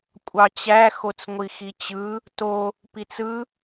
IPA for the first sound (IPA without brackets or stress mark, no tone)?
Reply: kʷʼ